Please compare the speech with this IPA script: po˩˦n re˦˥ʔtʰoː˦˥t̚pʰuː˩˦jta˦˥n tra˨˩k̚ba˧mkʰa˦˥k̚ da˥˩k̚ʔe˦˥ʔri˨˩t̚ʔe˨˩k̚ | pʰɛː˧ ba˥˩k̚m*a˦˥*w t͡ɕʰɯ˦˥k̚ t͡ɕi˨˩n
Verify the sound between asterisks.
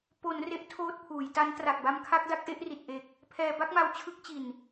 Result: correct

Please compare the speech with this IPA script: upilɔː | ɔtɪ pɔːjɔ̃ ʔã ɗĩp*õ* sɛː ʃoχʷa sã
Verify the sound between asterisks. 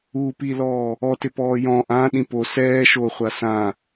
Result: incorrect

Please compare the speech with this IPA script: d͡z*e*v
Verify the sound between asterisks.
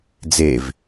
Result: correct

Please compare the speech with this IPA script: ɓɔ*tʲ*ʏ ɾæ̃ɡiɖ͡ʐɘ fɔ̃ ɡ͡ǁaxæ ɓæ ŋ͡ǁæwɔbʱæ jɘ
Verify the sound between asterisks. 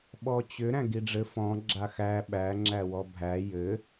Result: incorrect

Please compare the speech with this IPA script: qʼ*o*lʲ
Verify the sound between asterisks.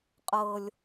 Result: incorrect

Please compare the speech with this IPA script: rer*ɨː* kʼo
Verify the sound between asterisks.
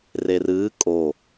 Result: correct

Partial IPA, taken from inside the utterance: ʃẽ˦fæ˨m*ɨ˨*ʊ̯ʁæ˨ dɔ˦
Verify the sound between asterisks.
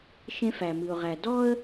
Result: correct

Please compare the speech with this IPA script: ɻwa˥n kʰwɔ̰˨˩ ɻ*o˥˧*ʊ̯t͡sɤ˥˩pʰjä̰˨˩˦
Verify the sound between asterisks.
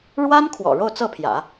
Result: correct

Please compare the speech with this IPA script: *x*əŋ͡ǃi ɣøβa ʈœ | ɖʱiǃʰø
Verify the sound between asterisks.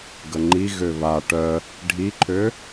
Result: incorrect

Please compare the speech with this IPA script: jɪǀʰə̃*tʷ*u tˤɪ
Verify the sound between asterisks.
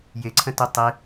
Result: incorrect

